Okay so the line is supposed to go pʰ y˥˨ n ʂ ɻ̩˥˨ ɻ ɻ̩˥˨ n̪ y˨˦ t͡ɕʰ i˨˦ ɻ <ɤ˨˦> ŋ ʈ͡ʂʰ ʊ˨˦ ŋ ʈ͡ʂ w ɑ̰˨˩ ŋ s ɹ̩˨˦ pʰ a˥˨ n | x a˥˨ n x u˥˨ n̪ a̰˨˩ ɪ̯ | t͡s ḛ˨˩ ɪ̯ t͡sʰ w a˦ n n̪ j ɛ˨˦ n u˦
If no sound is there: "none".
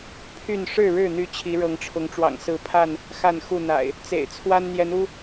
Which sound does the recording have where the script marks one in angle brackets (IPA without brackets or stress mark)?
ɤ˨˦